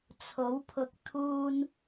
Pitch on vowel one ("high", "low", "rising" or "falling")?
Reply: rising